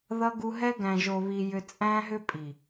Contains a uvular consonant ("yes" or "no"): no